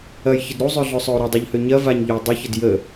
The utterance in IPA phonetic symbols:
ɐjçəd ɾuzˤøɮøsˤøu̯ ɾɐdˤuʎhø ɲɐ vaɲʎøu̯ dˤəçəd jə

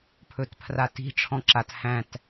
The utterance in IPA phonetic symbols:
pʰɵtpʰrati̤ ʈ͡ʂʰɔ̃ǁat hæ̃t

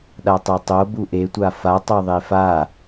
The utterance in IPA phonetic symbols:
ɗatˤɛtˤo buʔe tʷafa tˤœðˤefa

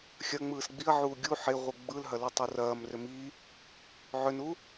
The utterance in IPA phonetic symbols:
xʲɐ ŋ͡mɯːsɡ͡biɐ̯ʕuː ɡʲu ħeʁʷɯ ɡ͡bɯlɦɐ lɯtˤurɐːm rʏmi | ʕʏnu

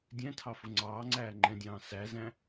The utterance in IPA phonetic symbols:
dʲɛ̃tʰɑfʊ ŋ͡ǀɑːŋ͡ǀæː ŋ͡ǃɛ̃dʲɑ̃ː sæzæ̃

